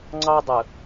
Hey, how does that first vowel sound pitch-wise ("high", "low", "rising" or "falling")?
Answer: high